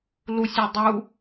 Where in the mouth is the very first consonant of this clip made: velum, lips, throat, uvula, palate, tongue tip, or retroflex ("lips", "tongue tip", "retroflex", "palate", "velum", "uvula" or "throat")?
tongue tip